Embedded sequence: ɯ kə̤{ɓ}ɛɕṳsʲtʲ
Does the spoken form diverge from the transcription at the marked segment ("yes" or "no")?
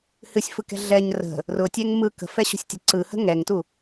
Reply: yes